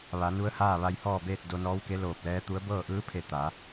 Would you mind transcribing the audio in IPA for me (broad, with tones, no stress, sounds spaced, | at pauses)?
ʋ a˩˧ n u˧˥ ə̯ h aː˥˨ ʋ a˧ j h ɔː˥˨ b eː˥˨ t̚ d o˧ n ɔː˧˥ w k e˧˥ l oː˧˩ p̚ l ɛː˧˥ t̪ u˧˥ ə̯ b ɤː˥˨ ʔ ɯː˧˥ pʰ e˧˩ t̪ a˩˧